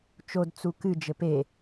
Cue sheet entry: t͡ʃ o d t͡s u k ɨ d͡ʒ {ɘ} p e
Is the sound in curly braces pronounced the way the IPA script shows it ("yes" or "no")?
yes